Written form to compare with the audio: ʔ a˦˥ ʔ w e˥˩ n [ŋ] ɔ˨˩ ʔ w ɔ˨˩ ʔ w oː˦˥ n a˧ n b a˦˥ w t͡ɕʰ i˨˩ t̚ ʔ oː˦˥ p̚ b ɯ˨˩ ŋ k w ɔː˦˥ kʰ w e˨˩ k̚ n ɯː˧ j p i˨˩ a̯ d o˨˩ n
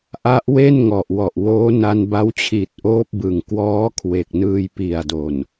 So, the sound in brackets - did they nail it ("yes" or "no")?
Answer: yes